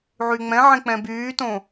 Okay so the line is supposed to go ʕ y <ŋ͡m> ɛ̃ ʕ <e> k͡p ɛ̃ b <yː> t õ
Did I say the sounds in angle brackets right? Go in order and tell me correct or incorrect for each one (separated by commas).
correct, incorrect, correct